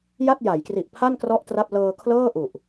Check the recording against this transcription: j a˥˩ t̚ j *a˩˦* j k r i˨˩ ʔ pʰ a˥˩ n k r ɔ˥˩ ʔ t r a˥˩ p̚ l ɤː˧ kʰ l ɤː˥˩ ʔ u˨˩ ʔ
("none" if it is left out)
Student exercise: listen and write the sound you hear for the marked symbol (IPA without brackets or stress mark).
a˩˦